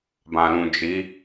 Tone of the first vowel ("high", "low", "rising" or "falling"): low